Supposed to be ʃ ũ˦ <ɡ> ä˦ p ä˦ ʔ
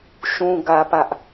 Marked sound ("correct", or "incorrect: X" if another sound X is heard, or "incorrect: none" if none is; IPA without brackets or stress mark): correct